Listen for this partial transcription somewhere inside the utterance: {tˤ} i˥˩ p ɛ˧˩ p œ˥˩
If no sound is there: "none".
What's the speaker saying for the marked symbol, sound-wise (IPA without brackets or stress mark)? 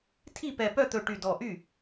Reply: tʰ